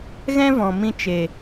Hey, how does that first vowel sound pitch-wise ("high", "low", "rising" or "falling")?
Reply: high